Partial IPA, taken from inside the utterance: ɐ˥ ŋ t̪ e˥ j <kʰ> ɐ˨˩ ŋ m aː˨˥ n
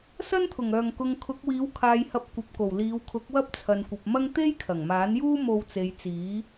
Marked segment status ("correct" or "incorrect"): correct